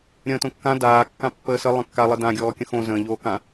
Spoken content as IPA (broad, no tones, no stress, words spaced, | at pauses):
ɾʲə̃ːtõkːã daː kːãpːəːsə lˠə̃kːa lˠədã ɡʲɔːkʲə̃xõ zə̃ː ʎoːkã